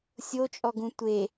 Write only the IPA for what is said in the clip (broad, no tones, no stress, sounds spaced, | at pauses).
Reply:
sʲ o t͡ʃʼ ɔ ɡ ũ tʷ e